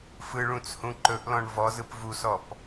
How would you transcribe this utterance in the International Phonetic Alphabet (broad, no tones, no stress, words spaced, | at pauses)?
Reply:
fɯɭũt͡shũ ǃɵʔlɔ̃ɳ vɔzɯp vusɔp